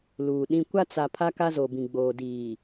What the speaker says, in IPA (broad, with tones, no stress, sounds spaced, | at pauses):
l uː˨ ɗ ĩ˦ kʷ a˦ t͡s a˨ pʰ a˦ k a˦ z o˨ b ĩ˨ ɡ͡b oː˨ d iː˨